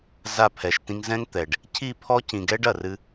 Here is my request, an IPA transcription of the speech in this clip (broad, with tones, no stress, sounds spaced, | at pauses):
z a˦˨ pʰ ɛ˨ ʃ t ĩ˦ ŋ z ɛ̃˦ ŋ t̪ ɛ˨ ɖ | cʰ i˦˨ pʰ ɔ˦ c ĩ˨ ɡ ɛ˦ ɖ ɐ˨ r ɨ˦